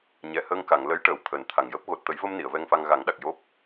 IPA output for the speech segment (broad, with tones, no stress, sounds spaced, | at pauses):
ɲ ɛ˨˩˨ h əː˧ ŋ k a˨˩˨ ŋ l ə˧˥ j ʈ əː˨˩ w t̪ʰ əː˨˩ n t̪ʰ a˨˩ ŋ j əː˦˥ p̚ ɣ o˨˩ t̚ t̪ ə˨˩˦ j v ə˧ m n i˨˩˨ ə̯ v ɛ˧ ŋ f a˧ ŋ ɣ a˨˩˦ ŋ ɗ a˨˩ k̚ j o˦˥ p̚